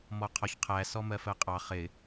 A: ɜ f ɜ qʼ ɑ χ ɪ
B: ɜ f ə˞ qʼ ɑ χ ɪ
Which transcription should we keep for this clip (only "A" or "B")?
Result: A